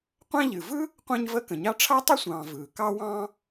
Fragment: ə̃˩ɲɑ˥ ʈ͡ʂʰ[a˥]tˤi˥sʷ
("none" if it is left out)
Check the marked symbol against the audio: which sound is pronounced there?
a˥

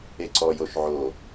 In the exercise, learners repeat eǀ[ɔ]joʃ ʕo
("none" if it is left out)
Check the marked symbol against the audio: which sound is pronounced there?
ɔ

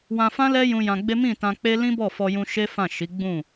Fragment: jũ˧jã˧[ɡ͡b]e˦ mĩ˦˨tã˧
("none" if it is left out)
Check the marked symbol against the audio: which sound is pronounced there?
ɡ͡b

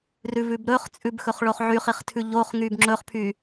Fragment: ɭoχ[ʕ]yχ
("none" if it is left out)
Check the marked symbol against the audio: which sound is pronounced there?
ʕ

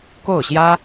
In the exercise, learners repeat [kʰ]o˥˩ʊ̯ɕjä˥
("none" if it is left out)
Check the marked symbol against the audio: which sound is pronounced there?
k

